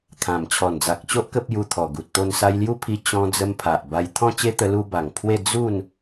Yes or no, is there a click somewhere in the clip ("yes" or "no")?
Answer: no